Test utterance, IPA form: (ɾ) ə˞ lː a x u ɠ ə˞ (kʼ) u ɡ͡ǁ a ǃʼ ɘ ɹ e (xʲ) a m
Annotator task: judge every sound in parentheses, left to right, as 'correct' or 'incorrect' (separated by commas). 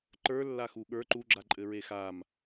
incorrect, incorrect, incorrect